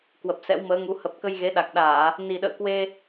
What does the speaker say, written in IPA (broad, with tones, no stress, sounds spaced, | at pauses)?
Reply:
k w ə˨˩ p̚ s ɛ̰˧˥ w m əː˨˦ ŋ u˨˦ h ə˨˩ p̚ k ə˧ j ɣ e˨˦ ɗ a˨˩ k̚ ɗ aː˧˩˨ | n i˨˩ ɗ ə̰ː˧˨ k w e˧